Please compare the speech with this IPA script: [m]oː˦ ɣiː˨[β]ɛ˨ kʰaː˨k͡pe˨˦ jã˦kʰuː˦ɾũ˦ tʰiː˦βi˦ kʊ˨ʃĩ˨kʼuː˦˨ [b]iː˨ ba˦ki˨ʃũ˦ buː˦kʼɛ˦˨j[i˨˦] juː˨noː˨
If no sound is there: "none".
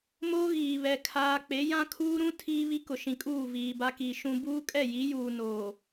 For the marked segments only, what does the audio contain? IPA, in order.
m, β, v, i˨˦

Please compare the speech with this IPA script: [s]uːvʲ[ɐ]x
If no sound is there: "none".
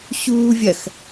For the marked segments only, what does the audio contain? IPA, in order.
ɕ, ɐ

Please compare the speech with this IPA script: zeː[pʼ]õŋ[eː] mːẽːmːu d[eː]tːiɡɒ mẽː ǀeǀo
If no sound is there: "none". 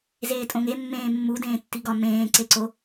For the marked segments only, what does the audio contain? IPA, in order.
tʼ, e, ẽː

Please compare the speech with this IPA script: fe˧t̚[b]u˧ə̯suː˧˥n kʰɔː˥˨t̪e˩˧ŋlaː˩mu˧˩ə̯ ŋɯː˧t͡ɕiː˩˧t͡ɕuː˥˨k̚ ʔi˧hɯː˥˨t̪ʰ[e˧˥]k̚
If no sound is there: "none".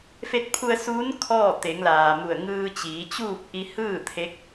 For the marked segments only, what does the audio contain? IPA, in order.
pʰ, e˧˥

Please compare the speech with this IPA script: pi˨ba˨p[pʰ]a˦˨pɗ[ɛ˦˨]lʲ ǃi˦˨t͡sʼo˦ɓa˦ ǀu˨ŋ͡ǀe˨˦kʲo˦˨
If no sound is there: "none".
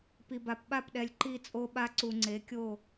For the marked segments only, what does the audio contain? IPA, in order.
ɓ, ɛ˨

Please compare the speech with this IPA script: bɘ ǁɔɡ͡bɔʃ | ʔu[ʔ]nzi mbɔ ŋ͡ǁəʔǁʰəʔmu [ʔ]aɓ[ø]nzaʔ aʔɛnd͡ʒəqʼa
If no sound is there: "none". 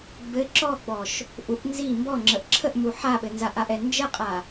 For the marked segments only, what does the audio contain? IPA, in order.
ʔ, ħ, ɘ

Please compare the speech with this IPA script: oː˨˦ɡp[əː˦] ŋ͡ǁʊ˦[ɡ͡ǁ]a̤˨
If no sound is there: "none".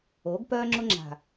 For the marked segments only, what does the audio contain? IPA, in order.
œː˦, ŋ͡ǁ

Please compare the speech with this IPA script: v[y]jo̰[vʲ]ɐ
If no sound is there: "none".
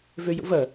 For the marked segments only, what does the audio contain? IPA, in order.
ø, v

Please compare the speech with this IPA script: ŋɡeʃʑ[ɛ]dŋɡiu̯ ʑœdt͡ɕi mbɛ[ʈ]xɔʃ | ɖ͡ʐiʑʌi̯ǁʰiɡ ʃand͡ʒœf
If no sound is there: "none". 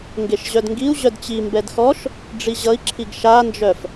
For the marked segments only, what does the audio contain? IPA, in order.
œ, d

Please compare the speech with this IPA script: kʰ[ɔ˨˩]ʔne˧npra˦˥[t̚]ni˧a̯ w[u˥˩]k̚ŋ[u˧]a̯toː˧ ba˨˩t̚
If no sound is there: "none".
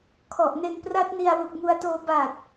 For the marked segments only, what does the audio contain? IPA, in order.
ɔ˨˩, t̚, u˨˩, u˧

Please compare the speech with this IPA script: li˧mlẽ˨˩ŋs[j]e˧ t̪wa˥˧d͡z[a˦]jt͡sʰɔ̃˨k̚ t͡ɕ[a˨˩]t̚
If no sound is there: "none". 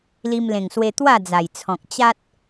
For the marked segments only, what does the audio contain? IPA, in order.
w, a˨˩, a˦

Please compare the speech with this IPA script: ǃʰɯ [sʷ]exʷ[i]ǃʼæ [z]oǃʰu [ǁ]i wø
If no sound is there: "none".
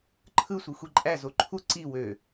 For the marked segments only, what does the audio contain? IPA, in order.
sʷ, i, z, ǀ

